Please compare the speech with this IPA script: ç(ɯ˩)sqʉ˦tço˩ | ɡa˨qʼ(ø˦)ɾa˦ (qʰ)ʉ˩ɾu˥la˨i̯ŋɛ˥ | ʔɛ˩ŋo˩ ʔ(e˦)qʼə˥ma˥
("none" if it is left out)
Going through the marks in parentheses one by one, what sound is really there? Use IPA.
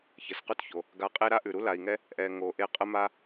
ə˩, e˦, ʔ, e˦

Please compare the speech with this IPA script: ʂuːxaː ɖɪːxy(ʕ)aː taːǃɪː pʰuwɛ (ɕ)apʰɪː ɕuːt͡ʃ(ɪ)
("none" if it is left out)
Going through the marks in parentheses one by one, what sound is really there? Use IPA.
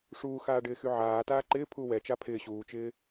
ʕ, t͡ʃ, ɪː

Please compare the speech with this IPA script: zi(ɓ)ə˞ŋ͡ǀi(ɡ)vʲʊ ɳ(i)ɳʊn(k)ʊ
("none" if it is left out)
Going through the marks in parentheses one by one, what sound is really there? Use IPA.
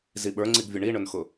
ɓ, ɡ, i, x

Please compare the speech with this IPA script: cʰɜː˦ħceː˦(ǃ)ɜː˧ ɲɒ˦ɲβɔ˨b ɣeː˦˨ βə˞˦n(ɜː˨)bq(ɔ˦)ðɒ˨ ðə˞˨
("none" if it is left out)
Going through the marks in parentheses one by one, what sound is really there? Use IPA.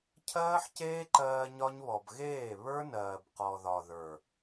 ǃ, ɜː˨, ɔ˨

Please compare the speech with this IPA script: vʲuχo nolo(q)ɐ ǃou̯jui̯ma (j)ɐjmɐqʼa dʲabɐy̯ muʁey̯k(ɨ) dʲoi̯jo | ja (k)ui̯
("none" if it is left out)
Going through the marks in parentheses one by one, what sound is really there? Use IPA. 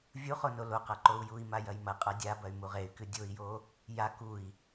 q, j, ɨ, k

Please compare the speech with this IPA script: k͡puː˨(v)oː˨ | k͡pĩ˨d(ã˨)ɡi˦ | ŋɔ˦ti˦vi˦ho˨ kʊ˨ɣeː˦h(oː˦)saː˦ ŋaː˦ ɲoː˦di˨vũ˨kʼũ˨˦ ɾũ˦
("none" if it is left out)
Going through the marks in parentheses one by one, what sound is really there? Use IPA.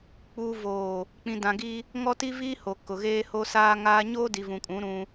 v, ã˨, o˦

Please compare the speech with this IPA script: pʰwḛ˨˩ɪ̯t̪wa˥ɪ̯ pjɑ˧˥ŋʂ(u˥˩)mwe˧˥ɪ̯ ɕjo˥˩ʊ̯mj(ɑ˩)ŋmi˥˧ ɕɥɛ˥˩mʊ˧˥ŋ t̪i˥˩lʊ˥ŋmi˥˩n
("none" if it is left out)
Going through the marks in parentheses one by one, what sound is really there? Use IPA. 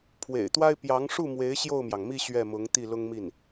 u˥˩, ɑ˩

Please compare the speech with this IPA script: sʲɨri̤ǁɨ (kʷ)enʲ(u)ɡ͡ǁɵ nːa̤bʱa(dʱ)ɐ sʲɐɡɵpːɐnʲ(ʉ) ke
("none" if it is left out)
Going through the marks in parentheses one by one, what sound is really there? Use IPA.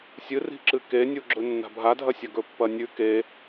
k, u, dʱ, ʉ

